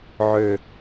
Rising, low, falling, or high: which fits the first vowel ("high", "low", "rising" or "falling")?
low